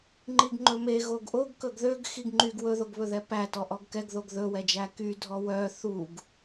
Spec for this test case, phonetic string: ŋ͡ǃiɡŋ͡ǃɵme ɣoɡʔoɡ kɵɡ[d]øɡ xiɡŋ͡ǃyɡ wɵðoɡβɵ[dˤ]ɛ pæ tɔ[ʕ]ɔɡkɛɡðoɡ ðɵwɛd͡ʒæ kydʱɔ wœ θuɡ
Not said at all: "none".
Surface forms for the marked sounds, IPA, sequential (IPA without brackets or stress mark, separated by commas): ð, ð, ʔ